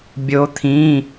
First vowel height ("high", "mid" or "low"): mid